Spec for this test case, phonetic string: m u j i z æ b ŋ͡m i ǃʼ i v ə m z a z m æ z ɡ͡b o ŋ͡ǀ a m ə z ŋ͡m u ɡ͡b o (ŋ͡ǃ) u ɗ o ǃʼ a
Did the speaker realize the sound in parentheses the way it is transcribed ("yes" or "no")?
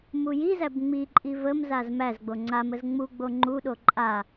yes